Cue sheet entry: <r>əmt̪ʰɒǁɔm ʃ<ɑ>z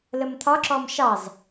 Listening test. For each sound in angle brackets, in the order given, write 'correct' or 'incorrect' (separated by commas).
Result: incorrect, correct